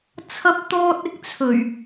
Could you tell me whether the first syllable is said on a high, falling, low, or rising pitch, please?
high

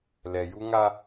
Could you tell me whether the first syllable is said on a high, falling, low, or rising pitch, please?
low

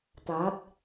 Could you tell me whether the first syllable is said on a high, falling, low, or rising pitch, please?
rising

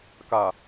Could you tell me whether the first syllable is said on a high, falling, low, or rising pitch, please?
low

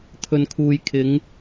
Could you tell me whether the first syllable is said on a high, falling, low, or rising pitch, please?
low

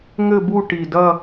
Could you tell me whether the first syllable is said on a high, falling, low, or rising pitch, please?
falling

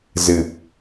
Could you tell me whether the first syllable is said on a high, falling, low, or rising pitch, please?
low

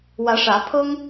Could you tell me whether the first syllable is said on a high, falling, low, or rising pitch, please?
rising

